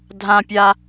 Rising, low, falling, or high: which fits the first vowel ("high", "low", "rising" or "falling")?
high